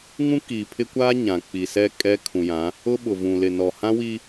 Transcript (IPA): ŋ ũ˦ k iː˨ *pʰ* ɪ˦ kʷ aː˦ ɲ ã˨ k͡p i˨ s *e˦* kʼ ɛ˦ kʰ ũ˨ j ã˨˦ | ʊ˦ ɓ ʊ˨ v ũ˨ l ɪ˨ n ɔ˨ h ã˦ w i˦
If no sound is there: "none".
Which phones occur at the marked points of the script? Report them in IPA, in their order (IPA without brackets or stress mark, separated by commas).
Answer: pʰ, ɛ˦